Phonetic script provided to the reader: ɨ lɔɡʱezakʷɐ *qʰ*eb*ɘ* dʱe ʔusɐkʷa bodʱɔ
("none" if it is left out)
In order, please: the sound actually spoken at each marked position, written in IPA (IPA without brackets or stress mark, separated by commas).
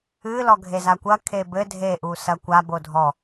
kʰ, ɘ